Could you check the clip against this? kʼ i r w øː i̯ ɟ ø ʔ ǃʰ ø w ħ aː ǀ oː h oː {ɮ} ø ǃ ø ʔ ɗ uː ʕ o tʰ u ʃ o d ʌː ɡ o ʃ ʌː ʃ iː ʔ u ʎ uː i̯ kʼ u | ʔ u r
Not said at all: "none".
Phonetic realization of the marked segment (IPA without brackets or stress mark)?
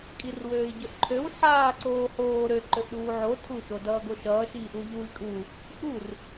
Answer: ɾ